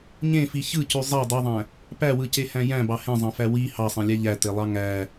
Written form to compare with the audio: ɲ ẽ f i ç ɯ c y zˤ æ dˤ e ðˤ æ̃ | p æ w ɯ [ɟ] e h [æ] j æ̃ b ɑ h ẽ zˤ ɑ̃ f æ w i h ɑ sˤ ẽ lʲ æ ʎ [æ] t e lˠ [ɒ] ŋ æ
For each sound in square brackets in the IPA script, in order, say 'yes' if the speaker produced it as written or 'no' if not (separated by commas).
no, no, yes, no